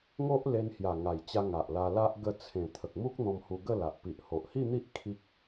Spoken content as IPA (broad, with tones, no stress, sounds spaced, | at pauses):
ŋ o˦ ʔ l e˧ n h j a˨˩ ŋ a˨˩ j t͡ɕ a˧ ŋ a˨ ʔ l a˧ l a˦ ʔ ɡ ə˧ t͡sʰ ẽ˨˩ t̪ʰ ə˨ k̚ m u˦ k̚ n̪ ɔ̃˧ m h u˧ ɡ ə˥˧ l a˨ ʔ p i˨ ʔ h o˨ ʔ h i˥˧ n̪ i˦ ʔ kʰ i˦ k̚